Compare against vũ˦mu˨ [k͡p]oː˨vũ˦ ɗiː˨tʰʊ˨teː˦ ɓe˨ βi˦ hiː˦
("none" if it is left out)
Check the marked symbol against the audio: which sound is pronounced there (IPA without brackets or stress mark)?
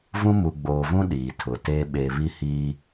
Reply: ɡ͡b